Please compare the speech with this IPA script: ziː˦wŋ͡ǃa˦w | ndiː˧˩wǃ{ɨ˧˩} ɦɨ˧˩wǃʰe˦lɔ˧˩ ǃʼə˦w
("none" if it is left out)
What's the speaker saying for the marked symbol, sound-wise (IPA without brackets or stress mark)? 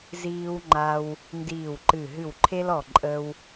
ɨ˧˩